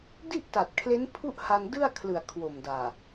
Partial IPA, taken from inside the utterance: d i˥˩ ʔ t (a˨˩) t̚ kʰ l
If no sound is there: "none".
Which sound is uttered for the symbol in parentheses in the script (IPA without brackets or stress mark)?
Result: a˨˩